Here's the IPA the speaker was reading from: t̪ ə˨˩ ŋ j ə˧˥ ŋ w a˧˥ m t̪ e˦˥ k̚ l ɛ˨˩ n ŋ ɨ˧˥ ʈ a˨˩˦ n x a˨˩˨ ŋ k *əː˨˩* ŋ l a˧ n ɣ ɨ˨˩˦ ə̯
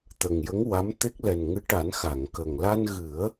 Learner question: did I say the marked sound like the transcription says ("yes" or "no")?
no